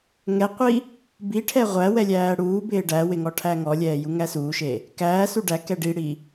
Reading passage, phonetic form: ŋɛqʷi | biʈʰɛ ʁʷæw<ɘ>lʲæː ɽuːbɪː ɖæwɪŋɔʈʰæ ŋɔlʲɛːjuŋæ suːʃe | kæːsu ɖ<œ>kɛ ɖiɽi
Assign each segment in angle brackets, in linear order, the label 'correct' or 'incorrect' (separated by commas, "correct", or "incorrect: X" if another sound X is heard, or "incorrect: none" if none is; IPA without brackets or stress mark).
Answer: incorrect: ɛ, incorrect: æ